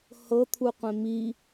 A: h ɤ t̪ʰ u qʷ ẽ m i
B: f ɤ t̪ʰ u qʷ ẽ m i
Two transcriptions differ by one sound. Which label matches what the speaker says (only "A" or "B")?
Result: A